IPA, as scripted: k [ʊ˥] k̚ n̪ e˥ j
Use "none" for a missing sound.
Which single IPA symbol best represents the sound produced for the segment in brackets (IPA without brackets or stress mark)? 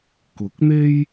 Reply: ʊ˨˥